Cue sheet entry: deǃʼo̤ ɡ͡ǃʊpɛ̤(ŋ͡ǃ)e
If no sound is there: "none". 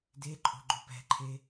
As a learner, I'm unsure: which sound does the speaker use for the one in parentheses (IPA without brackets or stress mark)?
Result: ǃʰ